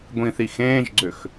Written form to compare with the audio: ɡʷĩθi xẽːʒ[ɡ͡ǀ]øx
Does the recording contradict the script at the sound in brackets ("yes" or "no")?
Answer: no